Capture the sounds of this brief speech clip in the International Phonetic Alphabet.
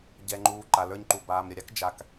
ɟɛ˨ŋ͡ǃuː˨ ǃa˨lə˞˧ɲǃu˨ baː˨mɾʲə˨ɾʲa˦k d͡ʒa˨k

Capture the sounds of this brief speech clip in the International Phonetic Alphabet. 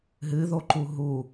ɦɨðoǃu ɦu

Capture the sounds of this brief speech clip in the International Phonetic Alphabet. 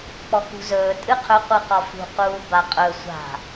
k͡pɔkṳzɵː tʼɨqʰɵ qʷɨqɒfṳ quːbaqʼɵ sʷa̤

